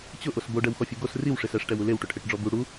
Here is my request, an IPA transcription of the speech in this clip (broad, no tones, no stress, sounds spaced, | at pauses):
t͡ɕ ʊ ʔ o s b o ɖ ɛ w x ɔ fʲ u ɡ o s r i w ʂ e s ɛ ʂ ʈ ɛ w u l e w ʈ ʊ ʈʰ e ʈ ɖ͡ʐ ɔ b u ɽ u